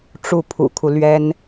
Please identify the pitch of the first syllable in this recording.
falling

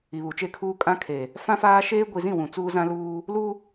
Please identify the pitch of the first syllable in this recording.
low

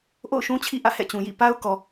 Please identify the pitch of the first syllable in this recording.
falling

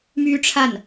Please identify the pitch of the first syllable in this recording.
high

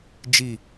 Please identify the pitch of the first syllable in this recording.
falling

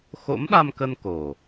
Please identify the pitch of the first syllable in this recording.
rising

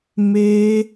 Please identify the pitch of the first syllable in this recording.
high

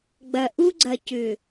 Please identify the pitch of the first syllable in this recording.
low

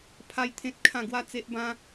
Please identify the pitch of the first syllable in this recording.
high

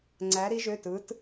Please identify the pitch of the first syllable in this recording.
rising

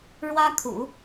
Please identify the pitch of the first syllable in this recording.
high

